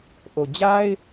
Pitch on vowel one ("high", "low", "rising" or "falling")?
low